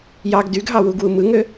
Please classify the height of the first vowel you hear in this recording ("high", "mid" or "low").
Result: low